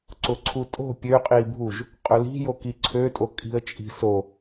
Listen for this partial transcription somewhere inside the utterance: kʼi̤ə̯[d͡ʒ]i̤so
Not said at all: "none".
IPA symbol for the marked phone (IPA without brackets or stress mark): t͡ʃʼ